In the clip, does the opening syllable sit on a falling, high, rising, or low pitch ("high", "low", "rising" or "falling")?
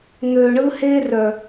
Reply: low